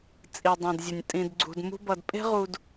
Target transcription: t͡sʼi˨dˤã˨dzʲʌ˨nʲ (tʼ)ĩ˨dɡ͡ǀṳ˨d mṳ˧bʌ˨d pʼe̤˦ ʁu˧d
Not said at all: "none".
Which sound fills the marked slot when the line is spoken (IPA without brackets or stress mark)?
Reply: tʼ